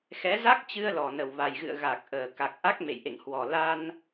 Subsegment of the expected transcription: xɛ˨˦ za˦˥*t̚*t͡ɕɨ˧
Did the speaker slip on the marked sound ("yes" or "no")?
yes